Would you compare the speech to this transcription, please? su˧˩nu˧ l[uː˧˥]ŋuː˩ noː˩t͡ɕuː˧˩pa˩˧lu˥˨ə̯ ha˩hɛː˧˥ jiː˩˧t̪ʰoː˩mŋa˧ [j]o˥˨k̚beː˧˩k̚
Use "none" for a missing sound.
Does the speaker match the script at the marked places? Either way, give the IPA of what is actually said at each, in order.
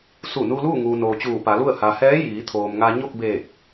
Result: uː˥˨, ɲ

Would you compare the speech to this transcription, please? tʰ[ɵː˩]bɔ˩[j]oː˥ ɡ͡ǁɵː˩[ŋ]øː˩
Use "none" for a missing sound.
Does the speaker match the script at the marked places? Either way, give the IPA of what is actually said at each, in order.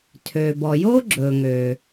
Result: øː˩, j, ŋ

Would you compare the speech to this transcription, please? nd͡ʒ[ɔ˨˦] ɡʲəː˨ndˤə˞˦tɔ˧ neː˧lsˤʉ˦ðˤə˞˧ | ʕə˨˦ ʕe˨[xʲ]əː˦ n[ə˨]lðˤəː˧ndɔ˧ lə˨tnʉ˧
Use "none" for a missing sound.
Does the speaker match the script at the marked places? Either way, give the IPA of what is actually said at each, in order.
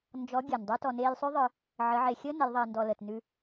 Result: ɔ˨˦, xʲ, ə˨˦

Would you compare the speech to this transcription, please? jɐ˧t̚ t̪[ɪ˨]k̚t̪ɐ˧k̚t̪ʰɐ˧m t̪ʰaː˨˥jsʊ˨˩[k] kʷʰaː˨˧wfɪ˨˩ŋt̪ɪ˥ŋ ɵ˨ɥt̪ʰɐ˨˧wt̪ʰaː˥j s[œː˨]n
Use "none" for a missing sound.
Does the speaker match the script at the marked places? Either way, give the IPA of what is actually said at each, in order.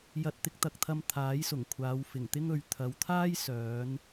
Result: ɪ˧, ŋ, œː˨˧

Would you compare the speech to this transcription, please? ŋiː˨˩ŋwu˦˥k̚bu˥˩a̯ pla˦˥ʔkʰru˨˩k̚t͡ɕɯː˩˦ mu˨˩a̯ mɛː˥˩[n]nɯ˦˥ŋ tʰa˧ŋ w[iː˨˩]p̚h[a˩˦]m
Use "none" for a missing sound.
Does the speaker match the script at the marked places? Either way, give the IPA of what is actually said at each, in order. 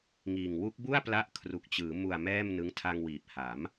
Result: m, iː˨˩, a˩˦

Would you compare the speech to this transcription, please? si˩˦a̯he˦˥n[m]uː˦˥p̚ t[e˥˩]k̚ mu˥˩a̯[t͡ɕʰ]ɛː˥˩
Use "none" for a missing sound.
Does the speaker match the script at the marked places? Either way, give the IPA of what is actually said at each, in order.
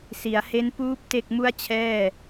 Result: p, e˥˩, t͡ɕʰ

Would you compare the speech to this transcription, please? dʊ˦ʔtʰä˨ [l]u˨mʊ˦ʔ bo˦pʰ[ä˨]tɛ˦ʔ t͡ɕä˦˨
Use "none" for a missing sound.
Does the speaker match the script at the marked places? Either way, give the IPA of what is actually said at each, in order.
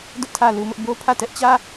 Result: l, ä˦˨

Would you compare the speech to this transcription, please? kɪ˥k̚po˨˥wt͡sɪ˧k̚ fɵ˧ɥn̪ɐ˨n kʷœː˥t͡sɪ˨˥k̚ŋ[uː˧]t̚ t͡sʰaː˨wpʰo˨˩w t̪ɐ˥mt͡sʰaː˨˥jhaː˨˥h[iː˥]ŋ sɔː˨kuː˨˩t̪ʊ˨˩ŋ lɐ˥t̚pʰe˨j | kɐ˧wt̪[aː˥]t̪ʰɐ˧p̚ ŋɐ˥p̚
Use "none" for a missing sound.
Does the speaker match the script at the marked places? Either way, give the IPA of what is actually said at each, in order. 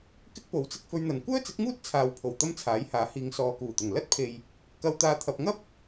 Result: uː˥, iː˨˧, aː˧

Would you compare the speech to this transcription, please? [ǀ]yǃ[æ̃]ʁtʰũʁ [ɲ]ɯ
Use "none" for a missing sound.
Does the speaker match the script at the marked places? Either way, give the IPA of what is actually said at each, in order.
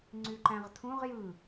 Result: ŋ͡ǀ, æ̃, j

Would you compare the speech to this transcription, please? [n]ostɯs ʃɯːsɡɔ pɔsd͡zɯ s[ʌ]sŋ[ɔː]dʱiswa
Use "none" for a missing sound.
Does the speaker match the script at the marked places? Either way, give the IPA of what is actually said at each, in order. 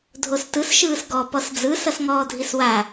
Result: dʱ, ʌ, ɔː

